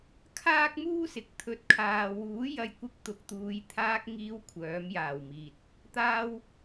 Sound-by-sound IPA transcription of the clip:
kʰaː˥k̚muː˥sɪ˨˥k̚ t̪ʰɵ˨˥t̚kʰaː˨wuː˨˥ jɐ˧jkʷɪ˧k̚ t̪ʊ˨k̚t̪uː˨˧jt̪ʰaː˧k̚ ŋiː˧w kʷʰœː˨˥m jaː˨˩wmiː˨t̚ | t̪aː˥w

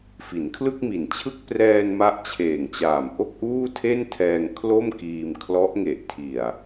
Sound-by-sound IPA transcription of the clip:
fi˩˦nkʰlɯ˥˩k̚mi˨˩nt͡ɕʰɯ˥˩k̚ prɛː˧n ma˦˥ʔt͡ɕʰeː˨˩ŋt͡ɕaː˨˩m ʔo˥˩k̚ʔuː˥˩tʰe˥˩ntʰɛː˧ŋ kʰlo˥˩mkiː˧mkʰlɔ˦˥ʔ ŋe˨˩ʔtʰi˨˩a̯

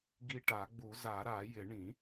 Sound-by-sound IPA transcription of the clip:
ɡi˧ʈa˨˩˦ɡ͡bu˨˩˦ za˨˩˦ɾa˨˩˦jɪ˨˩˦ ɳĩ˨˩˦

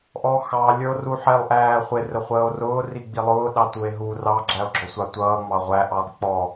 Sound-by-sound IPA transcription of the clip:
ʔɔxɑ lʲə˞o̯ruħɛlˠ ʔæːχʷɪ rəχʷəːo̯rʊː riɡ͡bilˠʊː ɗɑtue̯ɦu rɑ ɡ͡ǁæo̯ɡ͡ǁɔsʷɑtʷʌː ŋ͡mɑʁʷæ ʔɑlˠk͡pɔ

